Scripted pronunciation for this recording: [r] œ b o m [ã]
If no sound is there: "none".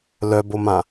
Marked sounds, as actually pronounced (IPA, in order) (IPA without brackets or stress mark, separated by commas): l, ã